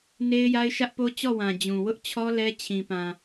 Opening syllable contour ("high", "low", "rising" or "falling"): high